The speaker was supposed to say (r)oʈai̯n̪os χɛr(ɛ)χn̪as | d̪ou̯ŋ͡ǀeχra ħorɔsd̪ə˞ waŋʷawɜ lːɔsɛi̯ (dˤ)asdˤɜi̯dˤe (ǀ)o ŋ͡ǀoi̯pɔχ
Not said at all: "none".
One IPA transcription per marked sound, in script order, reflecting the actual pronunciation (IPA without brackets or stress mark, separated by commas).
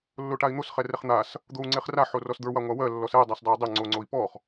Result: lː, ɛ, dˤ, ŋ͡ǀ